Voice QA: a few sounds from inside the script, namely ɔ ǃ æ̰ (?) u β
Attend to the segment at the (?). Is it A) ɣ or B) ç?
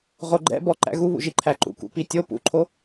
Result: A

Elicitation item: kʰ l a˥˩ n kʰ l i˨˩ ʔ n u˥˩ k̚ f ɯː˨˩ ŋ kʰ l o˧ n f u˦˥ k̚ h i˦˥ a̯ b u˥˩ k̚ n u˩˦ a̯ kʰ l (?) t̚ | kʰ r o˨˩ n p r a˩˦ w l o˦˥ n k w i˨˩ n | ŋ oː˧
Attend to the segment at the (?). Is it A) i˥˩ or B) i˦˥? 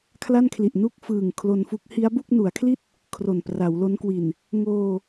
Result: A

